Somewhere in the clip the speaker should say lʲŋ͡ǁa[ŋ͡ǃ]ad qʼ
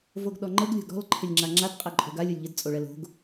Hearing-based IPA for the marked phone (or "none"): ŋ͡ǁ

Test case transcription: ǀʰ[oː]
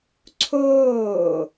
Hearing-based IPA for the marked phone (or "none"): oː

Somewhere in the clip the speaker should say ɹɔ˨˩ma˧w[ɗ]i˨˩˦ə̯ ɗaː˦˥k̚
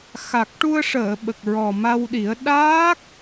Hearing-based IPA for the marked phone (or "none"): ɗ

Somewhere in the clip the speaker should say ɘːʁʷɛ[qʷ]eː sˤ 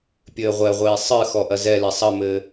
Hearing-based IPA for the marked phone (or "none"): ʁʷ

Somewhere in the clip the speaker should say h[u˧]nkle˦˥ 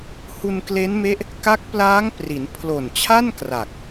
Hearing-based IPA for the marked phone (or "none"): u˧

